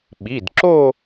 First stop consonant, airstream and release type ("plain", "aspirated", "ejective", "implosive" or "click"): implosive